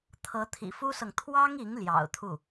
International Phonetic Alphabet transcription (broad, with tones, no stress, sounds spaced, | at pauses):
t̪ʰ ɤ˧˥ t̪ʰ ḭ˨˩ f u˥ s ɤ˨ ŋ t̪ʰ w ɑ˥ ŋ i˧˥ ŋ l j ɑ̰˨˩ ʊ̯ t̪ʰ u˥˩